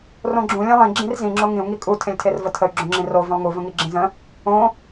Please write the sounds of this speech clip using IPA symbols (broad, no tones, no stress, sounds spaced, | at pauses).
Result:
r õ ɡ͡ǁ ũ lʲ ẽ lˠ ĩ ɡ͡ǁ ĩ r z ĩ ŋ͡ǁ o ŋ ĩ u̯ ŋ i kʼ u tʰ ẽ lʲ tʰ e r v ə tʰ ə y̯ ɡ͡ǁ õ ŋ͡ǁ ĩ r o v ə̃ lˠ ŋ u v ə̃ ŋ i ɡ͡ǁ ĩ z ə̃ | õ